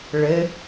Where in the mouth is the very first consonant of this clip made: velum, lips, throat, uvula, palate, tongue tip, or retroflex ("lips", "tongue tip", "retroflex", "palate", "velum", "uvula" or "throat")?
retroflex